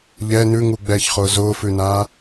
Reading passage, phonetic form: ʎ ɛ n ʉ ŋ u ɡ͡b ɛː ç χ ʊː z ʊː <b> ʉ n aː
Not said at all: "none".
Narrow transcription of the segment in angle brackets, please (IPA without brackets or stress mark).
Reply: f